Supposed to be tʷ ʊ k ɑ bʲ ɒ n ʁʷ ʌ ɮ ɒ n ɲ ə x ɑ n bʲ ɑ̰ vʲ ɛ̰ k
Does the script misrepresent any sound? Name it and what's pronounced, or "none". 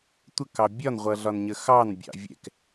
ʊ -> ə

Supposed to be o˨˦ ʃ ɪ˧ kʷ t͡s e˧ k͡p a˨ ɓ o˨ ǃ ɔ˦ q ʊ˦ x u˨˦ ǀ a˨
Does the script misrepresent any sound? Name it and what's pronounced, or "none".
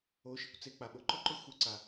q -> ǃ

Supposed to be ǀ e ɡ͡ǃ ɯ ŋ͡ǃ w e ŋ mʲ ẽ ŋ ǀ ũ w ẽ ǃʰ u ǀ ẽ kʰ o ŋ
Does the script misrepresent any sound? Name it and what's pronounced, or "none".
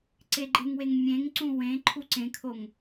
ŋ͡ǃ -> ŋ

